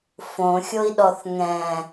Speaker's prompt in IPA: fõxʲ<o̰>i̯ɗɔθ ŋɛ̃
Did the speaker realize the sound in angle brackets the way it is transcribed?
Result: no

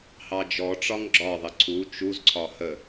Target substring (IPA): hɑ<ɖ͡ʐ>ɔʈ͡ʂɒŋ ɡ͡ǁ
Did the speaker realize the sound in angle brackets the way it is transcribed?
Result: no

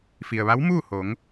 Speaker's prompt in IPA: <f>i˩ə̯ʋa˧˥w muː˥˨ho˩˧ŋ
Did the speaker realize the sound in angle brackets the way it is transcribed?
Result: yes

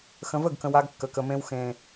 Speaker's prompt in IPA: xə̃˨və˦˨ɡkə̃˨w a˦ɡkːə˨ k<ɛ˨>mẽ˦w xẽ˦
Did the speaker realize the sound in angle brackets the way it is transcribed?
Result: no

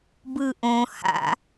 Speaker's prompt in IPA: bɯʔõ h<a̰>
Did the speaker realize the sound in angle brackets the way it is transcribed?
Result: yes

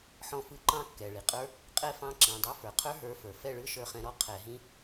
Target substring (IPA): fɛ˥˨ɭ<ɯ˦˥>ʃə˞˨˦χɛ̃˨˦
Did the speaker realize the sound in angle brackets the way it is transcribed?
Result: yes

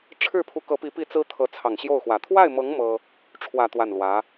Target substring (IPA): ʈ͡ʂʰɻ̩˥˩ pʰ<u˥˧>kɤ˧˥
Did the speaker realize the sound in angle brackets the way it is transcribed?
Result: no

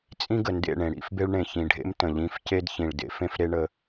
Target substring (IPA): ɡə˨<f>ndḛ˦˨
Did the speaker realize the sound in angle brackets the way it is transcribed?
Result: no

